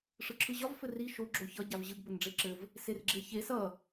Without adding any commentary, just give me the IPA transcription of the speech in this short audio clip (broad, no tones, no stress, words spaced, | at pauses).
ʂɯǁʰɯʑɒv fɘri ʃo ɡ͡ǁoçʌ ɟavʑɯɡ bɘnɖ͡ʐeǁɘv | serɡ͡ǁeçe sʌ